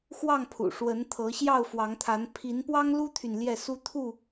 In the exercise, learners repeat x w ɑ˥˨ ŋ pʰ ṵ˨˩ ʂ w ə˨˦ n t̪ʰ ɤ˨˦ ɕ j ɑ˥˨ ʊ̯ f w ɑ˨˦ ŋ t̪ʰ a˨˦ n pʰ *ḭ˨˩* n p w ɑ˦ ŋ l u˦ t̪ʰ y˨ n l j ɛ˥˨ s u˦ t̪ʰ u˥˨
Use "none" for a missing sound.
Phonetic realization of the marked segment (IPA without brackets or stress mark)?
i˨˦